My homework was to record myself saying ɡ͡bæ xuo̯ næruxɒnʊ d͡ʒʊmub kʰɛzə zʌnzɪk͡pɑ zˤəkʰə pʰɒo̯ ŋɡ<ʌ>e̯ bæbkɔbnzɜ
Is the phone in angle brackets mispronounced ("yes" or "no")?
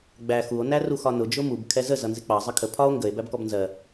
yes